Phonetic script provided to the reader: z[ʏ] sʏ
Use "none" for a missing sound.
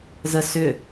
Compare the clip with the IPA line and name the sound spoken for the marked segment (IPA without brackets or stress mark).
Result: ə